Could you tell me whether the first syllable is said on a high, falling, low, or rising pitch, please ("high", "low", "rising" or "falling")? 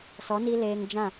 rising